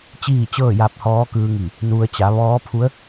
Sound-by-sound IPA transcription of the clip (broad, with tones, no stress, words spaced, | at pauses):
t͡ɕiː˥˨t͡ɕɤː˥˨ ja˧p̚ hɔː˧˥kɯː˧ŋi˧˩ | nu˧ə̯ t͡ɕa˩˧ʋɔː˧˥pʰu˧˥ə̯